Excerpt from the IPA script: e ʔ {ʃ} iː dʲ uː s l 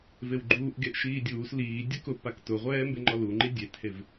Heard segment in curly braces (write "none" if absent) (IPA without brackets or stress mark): ʃ